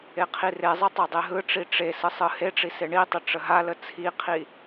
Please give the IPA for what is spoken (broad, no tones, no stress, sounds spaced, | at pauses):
e qʰ i r e zˤ ɯ tˤ ɯ dˤ e ɦ ɯ ʈ͡ʂ i ʈ͡ʂ e s ɯ sˤ ɯ h e ʈ͡ʂ i s e ɳ i tˤ ə ʈ͡ʂ ə ɦ a l ə t͡sʰ i qʰ i